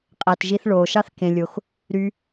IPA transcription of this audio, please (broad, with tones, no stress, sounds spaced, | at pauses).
qʼ æ˩ t ʒ i˨ θ ɭ oː˩ ʃ ɑ˦ θ k ẽ˩ lʲ o˩ x | ɾ y˨